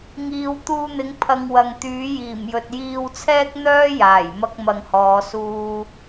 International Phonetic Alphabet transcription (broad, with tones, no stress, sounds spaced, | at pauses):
ŋ iː˨ w t̪ uː˧ n̪ ɪ˨˥ ŋ pʰ ɐ˧ ŋ w ɐ˨ ŋ t̪ yː˨˥ j iː˨˩ m j ɵ˨ t̚ j iː˧ w t͡sʰ ɛː˥ k̚ n̪ œː˥ j aː˨˩ j m ɐ˥ k̚ m ɐ˧ ŋ h ɔː˨˧ s uː˥